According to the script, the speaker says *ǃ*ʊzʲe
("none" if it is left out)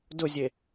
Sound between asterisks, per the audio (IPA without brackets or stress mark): d